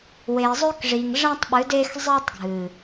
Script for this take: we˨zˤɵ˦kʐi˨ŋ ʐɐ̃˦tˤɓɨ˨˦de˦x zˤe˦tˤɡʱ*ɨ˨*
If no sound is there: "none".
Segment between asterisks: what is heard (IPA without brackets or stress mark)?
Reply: ɨ˨